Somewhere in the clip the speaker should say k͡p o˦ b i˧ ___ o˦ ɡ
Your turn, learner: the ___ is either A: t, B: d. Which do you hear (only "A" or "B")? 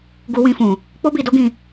B